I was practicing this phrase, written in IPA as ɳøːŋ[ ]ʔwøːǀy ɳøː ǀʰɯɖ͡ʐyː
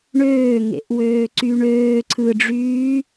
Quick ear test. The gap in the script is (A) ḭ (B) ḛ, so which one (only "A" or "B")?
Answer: B